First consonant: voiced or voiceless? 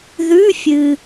voiced